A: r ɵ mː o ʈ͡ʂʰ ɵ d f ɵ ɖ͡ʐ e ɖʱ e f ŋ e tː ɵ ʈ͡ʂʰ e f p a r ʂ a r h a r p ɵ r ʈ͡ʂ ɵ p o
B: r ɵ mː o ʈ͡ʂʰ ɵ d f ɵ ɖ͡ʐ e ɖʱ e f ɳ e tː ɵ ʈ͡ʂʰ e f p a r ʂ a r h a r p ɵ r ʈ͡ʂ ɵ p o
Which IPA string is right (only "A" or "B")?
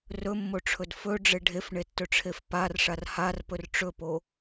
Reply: B